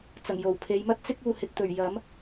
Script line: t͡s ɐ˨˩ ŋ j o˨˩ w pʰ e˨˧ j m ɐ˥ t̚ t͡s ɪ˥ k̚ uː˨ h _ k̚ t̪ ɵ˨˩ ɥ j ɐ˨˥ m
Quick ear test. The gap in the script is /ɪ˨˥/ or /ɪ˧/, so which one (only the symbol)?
ɪ˧